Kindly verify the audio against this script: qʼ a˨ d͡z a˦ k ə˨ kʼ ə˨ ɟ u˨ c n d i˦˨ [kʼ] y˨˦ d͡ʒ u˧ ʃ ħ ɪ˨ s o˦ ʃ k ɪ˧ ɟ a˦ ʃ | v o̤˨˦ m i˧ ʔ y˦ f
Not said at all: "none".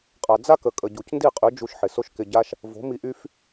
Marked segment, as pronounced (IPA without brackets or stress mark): qʼ